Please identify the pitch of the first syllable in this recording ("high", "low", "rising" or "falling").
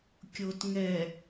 low